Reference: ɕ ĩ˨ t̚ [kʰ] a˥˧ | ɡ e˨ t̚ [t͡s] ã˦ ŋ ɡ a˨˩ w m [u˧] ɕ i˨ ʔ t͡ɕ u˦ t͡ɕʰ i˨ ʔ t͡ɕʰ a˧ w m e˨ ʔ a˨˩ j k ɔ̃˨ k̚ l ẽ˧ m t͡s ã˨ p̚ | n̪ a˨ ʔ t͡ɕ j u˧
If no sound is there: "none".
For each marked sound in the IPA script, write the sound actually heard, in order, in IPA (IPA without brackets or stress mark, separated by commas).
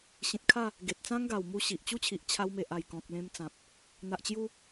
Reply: kʰ, t͡s, u˧